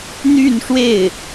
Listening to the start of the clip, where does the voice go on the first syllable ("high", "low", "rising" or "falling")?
falling